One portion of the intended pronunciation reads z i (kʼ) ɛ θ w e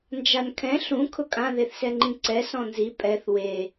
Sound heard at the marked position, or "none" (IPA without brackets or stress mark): pʼ